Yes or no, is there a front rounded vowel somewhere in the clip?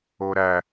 no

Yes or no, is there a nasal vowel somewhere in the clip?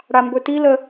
no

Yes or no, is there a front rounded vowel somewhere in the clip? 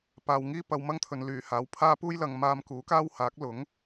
yes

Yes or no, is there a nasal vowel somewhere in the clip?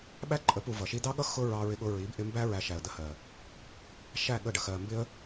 no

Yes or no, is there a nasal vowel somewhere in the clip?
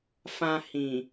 yes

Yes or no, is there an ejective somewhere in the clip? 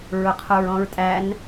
yes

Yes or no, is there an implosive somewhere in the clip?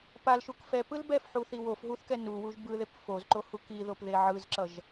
no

